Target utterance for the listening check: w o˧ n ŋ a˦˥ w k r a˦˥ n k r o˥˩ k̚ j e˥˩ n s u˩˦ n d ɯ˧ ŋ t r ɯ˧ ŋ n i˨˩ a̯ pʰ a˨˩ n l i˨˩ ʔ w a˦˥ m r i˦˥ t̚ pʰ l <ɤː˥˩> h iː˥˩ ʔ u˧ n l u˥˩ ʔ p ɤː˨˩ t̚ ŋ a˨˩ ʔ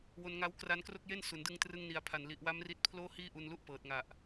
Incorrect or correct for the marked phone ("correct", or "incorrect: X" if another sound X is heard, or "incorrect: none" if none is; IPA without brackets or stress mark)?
incorrect: oː˥˩